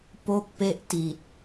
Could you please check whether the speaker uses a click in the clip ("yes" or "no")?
no